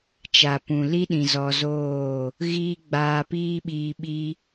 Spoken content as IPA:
t͡ʃa˨pũ˨li˦ɗĩ˨ zɔ˧zoː˦˨ | ɣiː˦ɡ͡baː˧piː˦ɓiː˧ ɓi˦

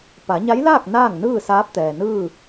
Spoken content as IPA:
pa˩˧ɲa˧˥jlaː˥˨k̚ naː˥˨ŋnɯː˥˨saː˧˥p̚ t̪ɛː˩nɯː˥˨

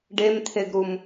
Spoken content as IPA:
ɖemt̪ʰeɡɾum

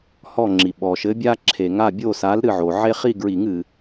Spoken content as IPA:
hɔ˦˨ŋ͡ǁi˩ ɓɔ˩ʃɘ˨˥bʲa˥ǁʰe˨˩˦ŋ a˦˨bʲo˦˨sa˨˥l ɾɨ˦˨ʕo˩ ʕe˥ χi˦˨ɡɹi˨˩˦ŋ ɨ˩

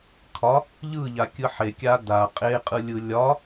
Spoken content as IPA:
kʰɒ | ʎɯʎakʲɯ ħekʲa da qʼeqʼɯlʲɯ lʲɒ

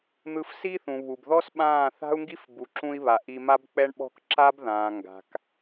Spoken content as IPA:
n̪ɯ˧fsi˦θũ˨ βu˨bðɔ˦sɓãː˦˨ θa̤˦u̯ŋɡi˦f bu˨ǁũ˧i̯βa˨ ʔi˧ma˦bk͡pɛ˦ɳɓɔ̤˦k ǁa˦bðãː˨ ŋɡa̤˨k

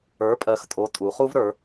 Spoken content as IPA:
ə˞˩˧pʼɜ˩˧xtʼo˩˧ tʼu˩˧χu˦vɾə˞˩˧

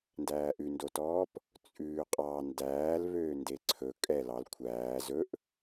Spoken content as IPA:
ndæːʔʉndotɔːp | t͡sʼʉːqʼɑ ndæːlβøː ndeǀʰɵ kʼɛ lɑl kʷʰæː zɵʔ

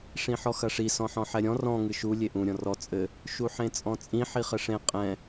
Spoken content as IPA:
ʂĩħɔxɐʂi sɔ̃ħɔ̃ħɛɾʲɔ̃ rɔ̃ ŋɨʃu lʲeʔũ ɾʲɔ̃rɔ t͡sʼɘ | ʃuħẽt͡sʼɔ̃t͡sʼĩ ħiχɘʂẽ qʼɛ̃

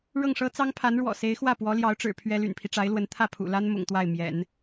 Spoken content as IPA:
ɻɤ˥˩ŋʂɤ˥ t͡sɑ˥ŋpʰa˧˥nɻwɔ̰˨˩ se˧˥ɪ̯xwä˥˩ pwɔ˧˥ljɑ˧˥ʊ̯ʈ͡ʂɻ̩˨˩ pʰɥɛ˥ ly̰˨˩npʰi˦ʈ͡ʂa˧˥ɪ̯lwə˧˥n t̪ʰä˥˩pʰṵ˨˩la˥n mʊ̰˨˩ŋt̪wa˥˩ɪ̯ mjɛ̰˨˩˦n

